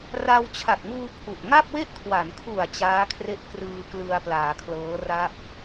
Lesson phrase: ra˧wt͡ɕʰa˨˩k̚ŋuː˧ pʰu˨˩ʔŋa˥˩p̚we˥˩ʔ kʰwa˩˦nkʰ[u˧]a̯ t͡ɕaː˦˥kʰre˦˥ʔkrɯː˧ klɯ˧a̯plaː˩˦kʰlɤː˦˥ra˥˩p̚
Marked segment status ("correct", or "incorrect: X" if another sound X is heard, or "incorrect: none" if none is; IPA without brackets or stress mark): incorrect: u˨˩